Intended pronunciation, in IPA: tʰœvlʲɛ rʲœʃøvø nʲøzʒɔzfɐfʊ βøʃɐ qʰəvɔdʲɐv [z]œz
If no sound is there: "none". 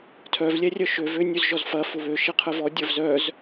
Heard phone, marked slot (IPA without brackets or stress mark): z